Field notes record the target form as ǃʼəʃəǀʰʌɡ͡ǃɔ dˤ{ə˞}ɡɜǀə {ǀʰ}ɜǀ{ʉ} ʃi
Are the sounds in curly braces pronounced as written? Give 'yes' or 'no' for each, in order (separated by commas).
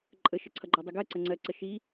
no, no, no